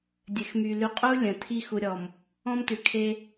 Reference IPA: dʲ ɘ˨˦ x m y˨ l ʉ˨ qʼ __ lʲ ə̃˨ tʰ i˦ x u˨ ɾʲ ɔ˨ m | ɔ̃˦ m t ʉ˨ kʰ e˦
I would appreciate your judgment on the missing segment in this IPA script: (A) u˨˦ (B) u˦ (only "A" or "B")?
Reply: B